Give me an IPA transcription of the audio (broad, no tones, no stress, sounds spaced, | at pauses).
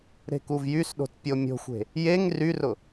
ɾ e̤ k u v j y s ɗ o̤ t pʲ o mʲ o̤ xʷ e̤ | j e ŋ r y r ʊ